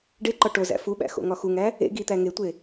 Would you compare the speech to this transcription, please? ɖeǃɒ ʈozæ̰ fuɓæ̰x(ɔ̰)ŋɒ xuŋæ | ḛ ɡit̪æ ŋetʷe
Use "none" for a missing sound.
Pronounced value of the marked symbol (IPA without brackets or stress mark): o̰